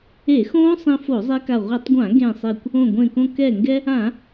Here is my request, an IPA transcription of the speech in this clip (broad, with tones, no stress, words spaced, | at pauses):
e˧˩˧xõː˦˥ sˤĩ˧fo˧˩˧zˤe˧ka˧˩ ʁʷʌ˧˩˧tˤɡʷã˧˩˧ ɡẽ˧˩sˤe˧˩kʷ | õ˧˩ɡʷẽ˧˩kõ˧ kɛ˧˩ŋɡɛ˧ | ã˧˩˧